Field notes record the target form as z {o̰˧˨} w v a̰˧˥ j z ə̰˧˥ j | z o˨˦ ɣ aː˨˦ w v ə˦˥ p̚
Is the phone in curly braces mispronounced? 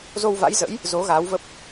yes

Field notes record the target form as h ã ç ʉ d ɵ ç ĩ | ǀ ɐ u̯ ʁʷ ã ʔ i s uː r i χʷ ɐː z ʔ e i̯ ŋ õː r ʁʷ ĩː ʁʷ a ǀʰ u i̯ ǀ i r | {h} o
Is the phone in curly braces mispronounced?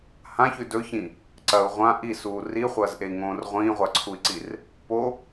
yes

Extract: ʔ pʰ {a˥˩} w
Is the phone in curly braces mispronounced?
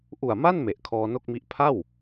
no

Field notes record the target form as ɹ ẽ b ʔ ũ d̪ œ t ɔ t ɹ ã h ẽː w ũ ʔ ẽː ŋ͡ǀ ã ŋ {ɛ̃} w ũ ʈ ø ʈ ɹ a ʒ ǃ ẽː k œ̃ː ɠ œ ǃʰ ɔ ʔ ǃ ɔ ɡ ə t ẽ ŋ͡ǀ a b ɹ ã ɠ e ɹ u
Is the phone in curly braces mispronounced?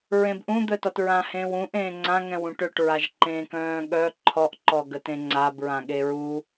no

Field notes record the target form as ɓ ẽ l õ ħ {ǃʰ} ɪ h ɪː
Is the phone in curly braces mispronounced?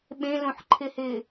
no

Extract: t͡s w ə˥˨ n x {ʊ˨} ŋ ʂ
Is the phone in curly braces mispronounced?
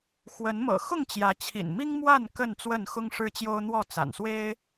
yes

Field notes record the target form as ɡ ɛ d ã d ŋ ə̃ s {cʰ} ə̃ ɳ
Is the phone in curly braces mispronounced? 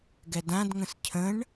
no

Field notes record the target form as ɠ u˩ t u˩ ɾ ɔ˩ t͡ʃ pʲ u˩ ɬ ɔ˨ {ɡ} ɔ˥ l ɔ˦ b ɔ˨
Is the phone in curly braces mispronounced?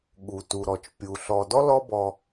yes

